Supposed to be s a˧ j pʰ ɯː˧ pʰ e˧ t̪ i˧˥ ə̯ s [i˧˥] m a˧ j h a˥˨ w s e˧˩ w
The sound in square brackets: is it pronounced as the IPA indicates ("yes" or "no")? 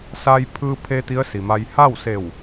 no